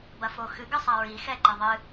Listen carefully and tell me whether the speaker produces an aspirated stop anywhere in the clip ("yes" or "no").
no